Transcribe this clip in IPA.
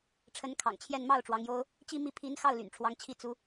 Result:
ʈ͡ʂʰ ə˧˥ n kʰ ɑ̰˨˩ ŋ t͡ɕʰ j ɛ˥˧ n m ɑ˥˩ ʊ̯ ʈ͡ʂ w ɑ˧˥ ŋ j o˥ ʊ̯ | t͡ɕ i˥˧ m i˥˩ pʰ i˧˥ n x ɑ˥˩ ʊ̯ l y̰˨˩ n ʈ͡ʂʰ w ɑ˧˥ ŋ t͡ɕʰ i˥˩ t͡s u˥

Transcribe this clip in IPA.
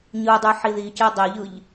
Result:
ɲ ɯ dˤ y ħ i ð i c e dˤ e ʎ ɯ ʎ

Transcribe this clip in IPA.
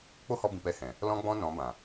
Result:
k͡p o˦ h ɔ˧ b ĩ˨ p ɛ˧ h ɛ̃˨ | l ɔ̃˦ ɡ͡b ɔ̃˦ n ɔ̃˨˦ b ã˨

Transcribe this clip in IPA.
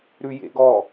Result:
ɾ ʉ j ḛ ɡ ɔ

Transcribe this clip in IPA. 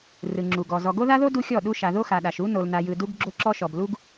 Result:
r ɯ˨ ŋ͡ǁ u˨ ɡ ɔ˨ z ɔ˨ ɡ o˦ ð a˦ ð o˦ d u˦ xʲ ɔ˦˨ ɗ u˦ ʃ a˨ ð o˦ x a˨ ɗ a˨ ʃ u˦ n o˨ l n a˨ j ɯ˨ d u˦ ɡ ɡ͡ǁ o˦ ǁ ɔ˦ ʃ ɔ˨ b l u˦ ɡ

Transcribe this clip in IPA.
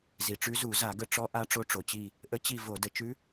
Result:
z i˩ ʈ͡ʂ ʉ˧˥ z u˧˩˧ z a˧˩˧ ɡ ə˦˨ ʈ͡ʂ ɔ˧˥ ʔ a˧˥ ʈ͡ʂ o˧˥ ʈ͡ʂ o˩ t͡ɕ i˦˨ | ʔ ə˧˥ t͡ɕ i˦˨ v o˧˩˧ d ə˧˥ t͡ʃ ʉ˧˥

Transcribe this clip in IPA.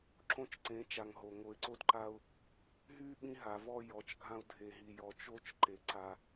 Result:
ǁ õ˦ t͡ʃ ǀ ẽ˨˦ t͡ʃ a˨ ŋ ɦ o˨ ŋ o˨ ɪ̯ ǀ o˦ d ǃ a˦ ʊ̯ | ɦ y˦ ɓ ĩ˦ ɦ a˨ v ɔ˦ j ɔ˨˦ t͡ʃ ɡʱ ã˦ ʊ̯ dʱ e˨ ɦ i˨ j ɔ˨ t͡ʃ o˦ t͡ʃ ǃ e˨ ǀ a˦

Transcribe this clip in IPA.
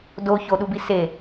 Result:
d o ç o ɗ u b i s e

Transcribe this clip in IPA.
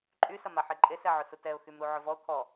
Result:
ǃʼ y s ɐ m a ħ e ǃʼ e s ɛ ʕ ʊ s u t ɛ ʊ̯ x y m ɾ u ʕ ʊ v ɔ ʊ̯ kʰ ɔ

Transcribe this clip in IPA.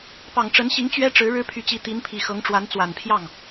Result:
p ɑ˨˩ ŋ ʈ͡ʂ ə˧˥ n ɕ i˧˥ ŋ t͡ɕ ɥ ɛ˥ ʈ͡ʂ ɻ̩˧˥ ɻ ɻ̩˥ pʰ y˧˥ t͡ɕ i˧˥ t̪ i˧˥ n pʰ i˨˩ x ɤ˧˥ ŋ ʈ͡ʂ w a˧˥ n t͡s w a˨˩ n pʰ j ɑ˥˩ ŋ

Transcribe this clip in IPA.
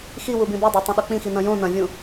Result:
x i w u b ĩ b u dˤ o tˤ ɐ̃ ɗ o k͡p ĩ x i n ɐ̃ j õ n ɐ̃ vʲ ũ

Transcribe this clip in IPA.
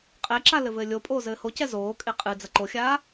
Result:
qʼ ɛ ǁ a l ɘ v ɘː lʲ o pʼ oː z ɘː h o c ɛ z oː kʼ e qʼ ɨ d͡z ɐ ǃ o xʲ aː

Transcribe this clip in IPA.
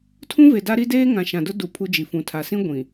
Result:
tʰ ũ˦ v e˨ d a˦ ɾ i˦ d eː˦ ŋ ã˨ ʃ ã˨ d ʊ˦ d u˨ pʰ u˦ d͡ʒ i˨ f ũ˨ tʰ a˨ s ĩ˦ ɡʷ ĩ˨

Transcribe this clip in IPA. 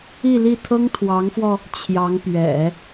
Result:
i˥˧ l i˥˩ t̪ʰ ɤ˥ ŋ t̪ʰ w ɑ˧˥ ŋ f w ɔ˧ | t͡ɕʰ j ɑ˧˥ ŋ p ɥ ɛ̰˨˩˦

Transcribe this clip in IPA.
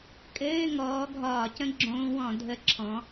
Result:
kʼ ɘː˧˥˧ ŋ ɔː˨˦ ɡʱ ɒː˧˩˧ c ə̃˧˥˧ ɡ͡ǁ õː˦˥ w ɔ̃˧˩˧ dʱ ə˧˥˧ ǁʰ ɔ̃˨˦

